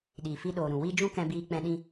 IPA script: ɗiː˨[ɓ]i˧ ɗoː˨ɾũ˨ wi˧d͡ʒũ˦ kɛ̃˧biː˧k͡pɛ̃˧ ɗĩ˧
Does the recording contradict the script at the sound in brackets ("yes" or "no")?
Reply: yes